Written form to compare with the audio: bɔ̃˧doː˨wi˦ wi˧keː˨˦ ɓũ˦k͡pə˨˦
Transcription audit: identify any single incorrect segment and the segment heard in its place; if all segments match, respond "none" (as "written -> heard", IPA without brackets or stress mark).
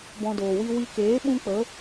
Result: none